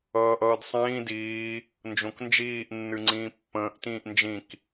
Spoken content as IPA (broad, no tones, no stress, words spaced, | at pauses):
ʌːʔʌːdsˤĩː diː | nd͡ʒõknd͡ʒiːʔ nːɨŋ͡ǀĩːpːə̃ːʔ tĩːʔnd͡ʒĩk